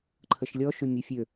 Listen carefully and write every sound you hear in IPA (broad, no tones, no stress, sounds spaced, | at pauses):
ǃʰ ə ʃ lʲ ɔ ʃ ʏ mʲ e fʲ ø